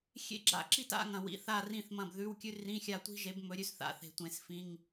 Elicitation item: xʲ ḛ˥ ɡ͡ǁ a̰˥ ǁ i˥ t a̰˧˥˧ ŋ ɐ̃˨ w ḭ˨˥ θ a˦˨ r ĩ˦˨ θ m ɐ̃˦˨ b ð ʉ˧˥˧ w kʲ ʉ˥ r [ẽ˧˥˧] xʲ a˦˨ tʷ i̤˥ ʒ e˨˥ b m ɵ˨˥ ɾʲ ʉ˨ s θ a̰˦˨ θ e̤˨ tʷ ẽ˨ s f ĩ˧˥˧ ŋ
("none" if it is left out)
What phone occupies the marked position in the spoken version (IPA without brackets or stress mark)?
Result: ĩ˧˥˧